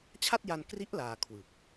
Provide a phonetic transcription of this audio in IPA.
t͡ɕʰ a˥˩ t̚ j a˧ n k r i˦˥ ʔ l aː˧ kʰ w ɯ˨˩ k̚

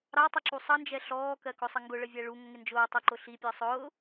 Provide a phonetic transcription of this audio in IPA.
ɾ ɑ tˤ ʌ ǁ u sˤ ʌ n d͡ʒ ɛ ɬ ɔː k ɜ k ʊ sˤ ə ŋ ɡ ʊ ɭ ə vʲ æ ɭ u ŋ ə ŋ ɪ n d͡ʒ ʊː tˤ ɜ ǃ ʊ ɬ i pʲ ɜ sˤ ʊː

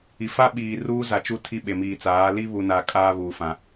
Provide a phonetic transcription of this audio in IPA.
i˨ f a˦ ɓ iː˨ r uː˦ z a˨ t͡ʃ u˦ tʰ i˦ ɓ e˨ m iː˨ t͡s aː˨˦ l i˦ β u˨ n a˨ kʼ aː˦ β uː˨ f ã˨

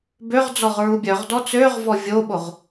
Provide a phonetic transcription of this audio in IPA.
b ø ʁ d͡z ɔ ʁ ɹ u bʲ œ ʁ d ɔ t͡s ø ʁ v ɔ vʲ o ɓ o ʁ

